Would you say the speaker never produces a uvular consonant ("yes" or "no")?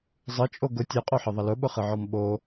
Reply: no